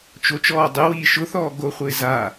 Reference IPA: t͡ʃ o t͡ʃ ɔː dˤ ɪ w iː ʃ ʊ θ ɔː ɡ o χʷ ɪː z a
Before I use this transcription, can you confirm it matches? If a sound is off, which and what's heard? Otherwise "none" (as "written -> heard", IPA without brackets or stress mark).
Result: none